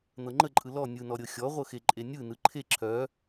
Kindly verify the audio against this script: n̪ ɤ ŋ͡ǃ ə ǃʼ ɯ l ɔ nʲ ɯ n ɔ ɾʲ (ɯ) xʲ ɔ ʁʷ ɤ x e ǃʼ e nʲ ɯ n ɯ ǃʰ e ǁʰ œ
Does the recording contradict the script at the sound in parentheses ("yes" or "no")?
yes